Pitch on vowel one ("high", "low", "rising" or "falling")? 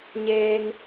low